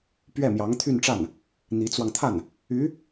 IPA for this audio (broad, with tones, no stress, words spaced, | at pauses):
pɥɛ˥˩mjɑ˧˥ŋt̪ʰy˥˧nʈ͡ʂa˥˩n | n̪i˧˥t͡swɑ˧ŋt̪ʰa˥˩n | y˧˥